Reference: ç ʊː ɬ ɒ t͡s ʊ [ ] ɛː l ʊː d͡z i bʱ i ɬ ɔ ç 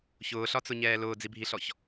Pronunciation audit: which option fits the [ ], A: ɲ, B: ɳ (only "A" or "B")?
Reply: A